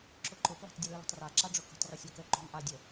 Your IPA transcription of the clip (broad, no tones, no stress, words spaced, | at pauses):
ǁʊǃʊpla̤tˤ dʲəlɯlə̤tˤra ǁaɖ͡ʐʊkə̤tˤrosʲ okə ǃo̤ŋʔadʲə